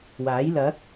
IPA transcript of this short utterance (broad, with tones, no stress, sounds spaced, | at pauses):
w aː˨˥ j l ɐ˨˥ k̚